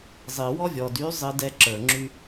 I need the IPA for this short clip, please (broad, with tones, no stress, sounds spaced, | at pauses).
zˤ i˨ w ɔ˦ vʲ ɔ˨ d y˨˦ zˤ i˧ d ɛ˦ ǁ ə˞˨ ŋ͡ǁ y˦